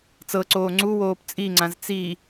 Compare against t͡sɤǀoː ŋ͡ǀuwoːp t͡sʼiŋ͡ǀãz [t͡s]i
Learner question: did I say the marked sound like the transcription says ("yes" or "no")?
yes